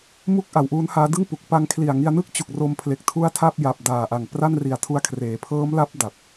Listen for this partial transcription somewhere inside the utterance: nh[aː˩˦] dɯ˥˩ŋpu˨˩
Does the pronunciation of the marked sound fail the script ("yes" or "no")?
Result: yes